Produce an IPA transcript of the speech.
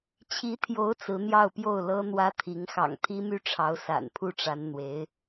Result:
t͡ɕʰi˧˥t̪ʰjo˧˥ʊ̯ t͡sɹ̩˧˥ n̪jɑ˥˧ʊ̯pjo˥˩ʊ̯ lɤ˥n̪wä˥t̪ʰi˧˥ŋ xɑ̰˨˩ŋt̪ʰi˥my˥˩ʈ͡ʂʰɑ˧˥ʊ̯ sa̰˨˩npʰu˥˩ʈ͡ʂa˧˥n n̪we˧˥ɪ̯

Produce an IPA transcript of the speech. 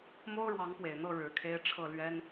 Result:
mo˥ʊ̯ɻwɑ˧˥ŋpwe˨˩ɪ̯n̪ɤ˥˩ ɻɻ̩˧˥kʰe˥ɪ̯ ʈ͡ʂʰɤ˥˩lɥɛ˥n

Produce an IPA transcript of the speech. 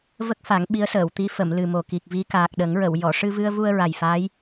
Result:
və˦˥k̚fa˨˩˦ŋ ɓi˧˥ə̯səː˨˩˨wt̪i˧˥ fə˨˩˨m lɨ˨˩mo˨˩ki˨˩k̚ vi˧˥ kaː˨˩k̚ɗə˨˩˦ŋɹə˨˩˨w jɔ˨˩˨ʂɨ˧vɨ˧ə̯vu˧ə̯ ɹa˨˩jfaː˧˥j

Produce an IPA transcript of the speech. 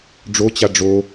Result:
ɖ͡ʐot͡ɕa ɖ͡ʐo

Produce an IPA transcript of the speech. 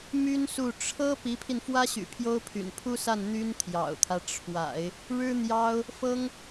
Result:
my˥nsu˥˩ ʈ͡ʂʰɤ˥ pi˧˥pʰi˧nfwä˥ɕy̰˨˩ pʰjo˥ʊ̯pʰy̰˨˩n pʰu˥sa˥˩n n̪y˥nt̪ʰjɑ̰˨˩ʊ̯t̪ʰä˦ ʈ͡ʂʰwa̰˨˩˦ɪ̯ | ɻɻ̩˥ n̪jɑ˥ʊ̯ | fɤ˥ŋ

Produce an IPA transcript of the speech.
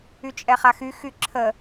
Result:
yt͡ʃʼɛχaxy xyǁʰə

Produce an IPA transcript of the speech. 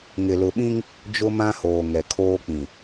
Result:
ŋɪ˨lʊ˨ɓĩ˦ŋ | d͡ʒʊ˦mã˦hoː˨ ŋɛ˨kʰoː˦k͡pĩ˨

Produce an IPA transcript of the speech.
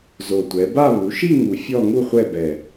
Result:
zo˨˩tʷɛ˩˧ba˥˧ βu˩˧ʃi˥˧ŋu˨˩ fʲɔ˥˧ŋu˥˧χʷɛ˥˧bɛ˨˩

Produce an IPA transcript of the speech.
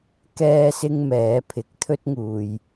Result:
kɛː˥sɪ˥ŋmɛː˨˥pʰɪ˨k̚ t̪ʰɵ˥t̚ŋuː˨j

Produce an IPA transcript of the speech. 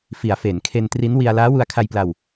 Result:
fi˩˦a̯fe˩˦nkʰe˧n tri˦˥nwi˧a̯ laː˦˥wu˧a̯kʰa˧jpla˧w

